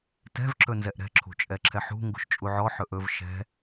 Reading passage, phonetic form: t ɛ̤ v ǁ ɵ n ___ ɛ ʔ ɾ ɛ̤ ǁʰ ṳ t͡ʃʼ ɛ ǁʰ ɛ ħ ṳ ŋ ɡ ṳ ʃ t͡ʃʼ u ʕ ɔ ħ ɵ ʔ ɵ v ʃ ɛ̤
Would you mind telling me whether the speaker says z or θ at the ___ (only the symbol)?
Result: z